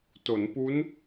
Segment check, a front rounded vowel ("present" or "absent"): absent